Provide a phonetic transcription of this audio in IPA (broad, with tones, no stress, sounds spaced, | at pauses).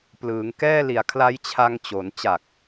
p l ɯː˩˦ ŋ k ɛː˥˩ l i˨˩ a̯ kʰ l a˦˥ j t͡ɕʰ a˧ ŋ t͡ɕ o˩˦ n t͡ɕ a˨˩ k̚